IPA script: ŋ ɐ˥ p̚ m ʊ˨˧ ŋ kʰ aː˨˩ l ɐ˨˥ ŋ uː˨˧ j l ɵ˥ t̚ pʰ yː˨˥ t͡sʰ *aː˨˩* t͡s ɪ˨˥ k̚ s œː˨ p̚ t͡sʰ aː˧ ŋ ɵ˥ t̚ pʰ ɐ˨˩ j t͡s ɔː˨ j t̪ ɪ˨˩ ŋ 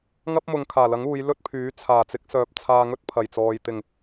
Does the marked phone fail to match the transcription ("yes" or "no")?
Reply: no